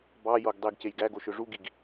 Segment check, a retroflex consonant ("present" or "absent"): present